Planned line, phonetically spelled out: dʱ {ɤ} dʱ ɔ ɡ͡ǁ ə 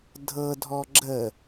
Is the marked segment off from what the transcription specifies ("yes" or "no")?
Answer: no